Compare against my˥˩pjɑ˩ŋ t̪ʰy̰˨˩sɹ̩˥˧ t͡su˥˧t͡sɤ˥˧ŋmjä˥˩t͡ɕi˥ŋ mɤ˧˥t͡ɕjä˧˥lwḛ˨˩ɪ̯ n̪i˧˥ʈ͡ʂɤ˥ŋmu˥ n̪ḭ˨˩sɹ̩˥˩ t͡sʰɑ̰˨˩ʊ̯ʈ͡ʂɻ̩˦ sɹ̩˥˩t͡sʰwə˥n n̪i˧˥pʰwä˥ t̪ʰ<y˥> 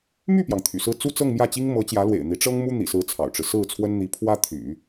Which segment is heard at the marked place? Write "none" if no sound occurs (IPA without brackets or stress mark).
y̰˨˩˦